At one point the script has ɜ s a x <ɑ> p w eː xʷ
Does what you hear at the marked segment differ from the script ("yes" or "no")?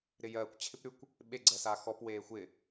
yes